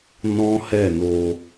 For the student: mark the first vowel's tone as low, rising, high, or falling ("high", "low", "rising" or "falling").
high